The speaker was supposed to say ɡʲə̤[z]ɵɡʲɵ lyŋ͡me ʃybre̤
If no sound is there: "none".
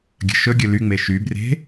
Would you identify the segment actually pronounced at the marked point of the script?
ʃ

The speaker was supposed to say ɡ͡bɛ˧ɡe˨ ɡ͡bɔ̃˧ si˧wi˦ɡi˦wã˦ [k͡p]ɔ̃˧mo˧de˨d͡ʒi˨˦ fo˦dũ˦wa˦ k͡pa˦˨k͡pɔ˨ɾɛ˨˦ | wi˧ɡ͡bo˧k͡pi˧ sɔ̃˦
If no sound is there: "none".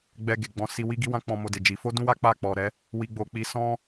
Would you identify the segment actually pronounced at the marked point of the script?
k͡p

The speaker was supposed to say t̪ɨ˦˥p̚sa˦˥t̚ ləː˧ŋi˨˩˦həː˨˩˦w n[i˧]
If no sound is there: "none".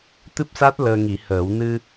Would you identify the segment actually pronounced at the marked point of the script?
ɨ˧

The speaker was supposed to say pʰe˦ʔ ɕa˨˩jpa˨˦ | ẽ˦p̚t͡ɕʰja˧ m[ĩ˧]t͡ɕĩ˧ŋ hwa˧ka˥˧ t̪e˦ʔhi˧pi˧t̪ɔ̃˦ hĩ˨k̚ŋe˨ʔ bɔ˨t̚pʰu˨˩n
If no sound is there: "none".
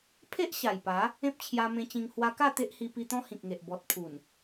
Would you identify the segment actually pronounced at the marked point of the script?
ẽ˧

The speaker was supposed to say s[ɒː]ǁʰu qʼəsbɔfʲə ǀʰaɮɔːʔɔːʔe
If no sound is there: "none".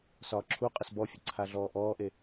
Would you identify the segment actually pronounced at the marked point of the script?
ɒː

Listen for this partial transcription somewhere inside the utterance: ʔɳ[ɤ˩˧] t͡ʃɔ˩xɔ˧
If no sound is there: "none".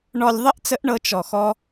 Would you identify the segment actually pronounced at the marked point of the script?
ɤ˧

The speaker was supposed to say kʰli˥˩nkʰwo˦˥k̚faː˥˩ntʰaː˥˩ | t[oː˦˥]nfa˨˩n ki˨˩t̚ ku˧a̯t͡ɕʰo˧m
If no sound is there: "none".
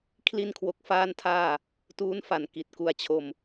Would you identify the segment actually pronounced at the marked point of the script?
uː˦˥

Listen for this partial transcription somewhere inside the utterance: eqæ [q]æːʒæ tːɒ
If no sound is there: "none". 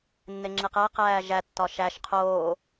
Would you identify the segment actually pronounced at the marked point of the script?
q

